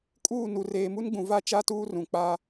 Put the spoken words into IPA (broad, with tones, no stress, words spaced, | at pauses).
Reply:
kʼuː˦˨nu˨ reː˨mu˦nɡ͡bũ˨ va˦˨ t͡ʃa˦tuː˦rũ˨ k͡pa˦